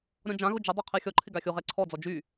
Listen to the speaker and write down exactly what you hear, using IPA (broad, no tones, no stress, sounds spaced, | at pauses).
ɾʲ ɔ̃ d͡ʒ ã ɣ ʊ d͡ʒ ə dˤ o qʰ ɛ xʲ ɔ ǃʰ ɪ ɡ a xʲ o ʁ ɛ ǀʰ ɔ d͡z ɔ d͡ʒ y